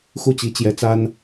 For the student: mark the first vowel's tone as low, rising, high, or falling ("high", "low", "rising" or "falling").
falling